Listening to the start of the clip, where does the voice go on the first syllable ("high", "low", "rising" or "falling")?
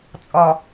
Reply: low